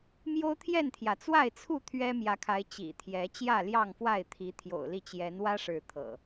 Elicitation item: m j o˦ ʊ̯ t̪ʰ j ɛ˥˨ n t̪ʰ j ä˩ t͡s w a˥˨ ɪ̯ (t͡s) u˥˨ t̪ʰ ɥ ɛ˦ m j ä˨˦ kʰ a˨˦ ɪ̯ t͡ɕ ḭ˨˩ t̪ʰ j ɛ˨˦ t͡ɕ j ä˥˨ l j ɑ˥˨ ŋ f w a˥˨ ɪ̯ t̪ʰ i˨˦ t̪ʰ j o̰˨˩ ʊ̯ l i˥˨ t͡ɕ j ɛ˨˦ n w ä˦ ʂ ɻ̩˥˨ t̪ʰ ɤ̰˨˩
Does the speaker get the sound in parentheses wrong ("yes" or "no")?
yes